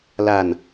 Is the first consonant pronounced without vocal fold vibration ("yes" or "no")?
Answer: no